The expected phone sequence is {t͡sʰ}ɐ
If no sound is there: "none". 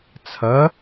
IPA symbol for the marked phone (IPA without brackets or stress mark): t͡sʰ